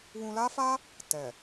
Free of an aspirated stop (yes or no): yes